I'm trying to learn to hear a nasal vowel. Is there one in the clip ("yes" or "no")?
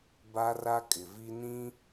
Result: yes